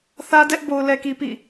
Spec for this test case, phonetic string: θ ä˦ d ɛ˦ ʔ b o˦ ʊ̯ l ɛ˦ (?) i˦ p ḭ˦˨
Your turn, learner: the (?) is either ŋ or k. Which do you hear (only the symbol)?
k